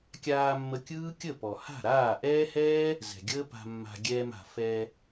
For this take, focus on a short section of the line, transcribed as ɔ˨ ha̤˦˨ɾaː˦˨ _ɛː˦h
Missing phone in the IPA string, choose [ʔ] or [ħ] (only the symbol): ʔ